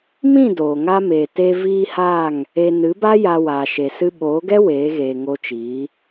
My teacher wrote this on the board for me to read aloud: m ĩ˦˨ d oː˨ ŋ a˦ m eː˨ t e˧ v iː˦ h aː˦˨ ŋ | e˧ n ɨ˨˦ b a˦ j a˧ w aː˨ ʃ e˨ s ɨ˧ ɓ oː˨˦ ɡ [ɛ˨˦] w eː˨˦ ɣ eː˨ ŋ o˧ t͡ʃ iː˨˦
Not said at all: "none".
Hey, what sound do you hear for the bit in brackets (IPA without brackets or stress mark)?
ɛ˦